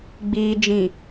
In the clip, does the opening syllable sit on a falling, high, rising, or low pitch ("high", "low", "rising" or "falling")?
low